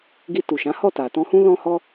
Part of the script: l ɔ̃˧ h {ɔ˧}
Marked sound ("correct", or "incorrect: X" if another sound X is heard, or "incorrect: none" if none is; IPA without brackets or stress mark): correct